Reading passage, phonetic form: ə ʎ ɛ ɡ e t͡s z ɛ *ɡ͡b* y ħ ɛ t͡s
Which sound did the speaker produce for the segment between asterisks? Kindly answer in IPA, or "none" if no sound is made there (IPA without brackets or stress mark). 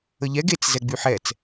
ɡ͡b